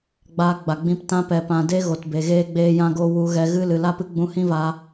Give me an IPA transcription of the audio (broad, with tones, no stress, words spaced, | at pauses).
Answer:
ɡ͡baː˧ɡ͡ba˨ɡ͡bĩ˧p tã˧pɛ˨pã˨ de˦ɣo˨tbe˨ ɣeː˦ɡ͡beː˦jã˦ɡo˦ wu˧ɣɛ˧ɣɨ˦ lɨ˨la˦pɨ˦ɡ͡bũ˧ hĩ˦va˧